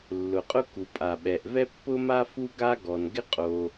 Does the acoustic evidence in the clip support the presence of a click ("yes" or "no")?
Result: no